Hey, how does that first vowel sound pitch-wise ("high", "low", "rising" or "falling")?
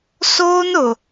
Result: high